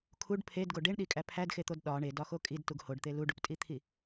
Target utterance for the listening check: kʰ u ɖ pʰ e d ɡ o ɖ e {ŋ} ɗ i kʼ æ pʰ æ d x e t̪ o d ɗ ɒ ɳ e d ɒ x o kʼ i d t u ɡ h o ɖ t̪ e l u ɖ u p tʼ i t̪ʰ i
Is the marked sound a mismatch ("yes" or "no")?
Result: yes